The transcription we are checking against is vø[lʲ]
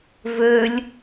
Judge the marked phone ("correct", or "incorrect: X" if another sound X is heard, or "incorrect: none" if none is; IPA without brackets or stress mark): correct